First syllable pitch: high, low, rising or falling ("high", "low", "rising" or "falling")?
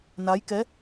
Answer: rising